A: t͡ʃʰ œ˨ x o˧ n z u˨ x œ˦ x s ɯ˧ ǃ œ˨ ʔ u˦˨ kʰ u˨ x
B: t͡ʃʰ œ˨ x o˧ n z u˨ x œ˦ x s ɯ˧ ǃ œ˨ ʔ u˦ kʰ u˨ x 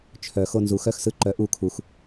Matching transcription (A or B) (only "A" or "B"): A